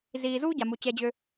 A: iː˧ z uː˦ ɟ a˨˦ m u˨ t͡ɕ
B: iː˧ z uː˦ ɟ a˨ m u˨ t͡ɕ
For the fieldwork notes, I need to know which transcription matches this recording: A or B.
B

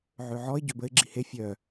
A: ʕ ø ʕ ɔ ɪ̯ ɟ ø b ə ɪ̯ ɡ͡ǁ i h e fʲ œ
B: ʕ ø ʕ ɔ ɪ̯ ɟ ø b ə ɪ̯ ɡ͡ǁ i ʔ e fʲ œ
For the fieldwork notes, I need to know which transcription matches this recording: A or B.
A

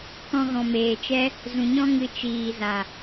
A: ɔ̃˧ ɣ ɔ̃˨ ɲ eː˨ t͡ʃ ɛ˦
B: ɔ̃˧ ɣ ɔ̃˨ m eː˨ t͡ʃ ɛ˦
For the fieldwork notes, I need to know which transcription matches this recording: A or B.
B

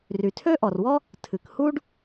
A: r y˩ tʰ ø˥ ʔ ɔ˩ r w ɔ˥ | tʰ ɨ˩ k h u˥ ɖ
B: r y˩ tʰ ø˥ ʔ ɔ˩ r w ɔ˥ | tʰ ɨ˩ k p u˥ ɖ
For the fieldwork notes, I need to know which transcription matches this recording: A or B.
A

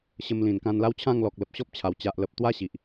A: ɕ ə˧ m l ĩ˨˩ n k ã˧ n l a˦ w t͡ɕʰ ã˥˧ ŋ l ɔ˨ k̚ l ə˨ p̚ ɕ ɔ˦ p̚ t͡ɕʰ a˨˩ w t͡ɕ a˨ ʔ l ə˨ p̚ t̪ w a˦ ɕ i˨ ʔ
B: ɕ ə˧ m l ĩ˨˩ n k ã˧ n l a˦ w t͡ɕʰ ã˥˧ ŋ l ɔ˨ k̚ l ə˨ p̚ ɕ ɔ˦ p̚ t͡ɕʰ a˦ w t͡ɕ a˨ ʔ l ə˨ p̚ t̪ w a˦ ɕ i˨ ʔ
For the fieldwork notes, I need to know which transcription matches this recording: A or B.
A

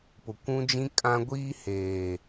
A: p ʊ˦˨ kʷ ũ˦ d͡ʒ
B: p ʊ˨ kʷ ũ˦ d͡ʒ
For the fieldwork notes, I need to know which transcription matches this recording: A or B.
B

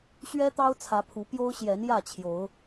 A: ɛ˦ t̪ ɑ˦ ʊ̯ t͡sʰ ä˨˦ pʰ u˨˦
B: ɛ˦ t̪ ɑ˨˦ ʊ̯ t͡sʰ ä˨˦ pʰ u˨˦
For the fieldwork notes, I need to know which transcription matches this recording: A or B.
A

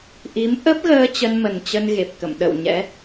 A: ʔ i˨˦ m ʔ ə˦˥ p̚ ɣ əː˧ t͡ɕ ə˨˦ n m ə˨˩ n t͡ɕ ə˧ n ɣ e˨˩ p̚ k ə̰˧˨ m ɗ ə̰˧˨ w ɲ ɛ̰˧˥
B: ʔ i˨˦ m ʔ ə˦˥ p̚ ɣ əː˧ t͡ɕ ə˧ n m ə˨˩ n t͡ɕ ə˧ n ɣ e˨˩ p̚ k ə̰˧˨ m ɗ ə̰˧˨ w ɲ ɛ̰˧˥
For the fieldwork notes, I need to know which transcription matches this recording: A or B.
B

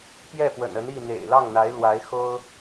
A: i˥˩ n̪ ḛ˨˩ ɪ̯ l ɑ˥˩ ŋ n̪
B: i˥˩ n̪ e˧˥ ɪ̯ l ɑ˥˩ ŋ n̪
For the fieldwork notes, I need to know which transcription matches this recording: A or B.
A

